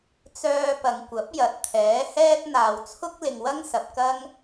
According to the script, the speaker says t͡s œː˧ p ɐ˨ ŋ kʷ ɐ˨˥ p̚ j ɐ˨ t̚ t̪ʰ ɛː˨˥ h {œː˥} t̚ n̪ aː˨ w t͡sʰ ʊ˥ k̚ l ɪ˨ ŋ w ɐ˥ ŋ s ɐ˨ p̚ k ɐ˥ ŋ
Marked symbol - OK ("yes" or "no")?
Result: no